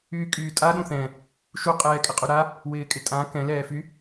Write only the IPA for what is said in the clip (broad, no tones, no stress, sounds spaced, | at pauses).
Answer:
yː kʼ yː tʼ a ɗ ũ θ ɛ̃ | ʃ u qʼ ɛː kʼ ɪ qʼ u ɾ a | w ɪː kʼ ɪ tʼ ã k ɛ̃ l ɛː f y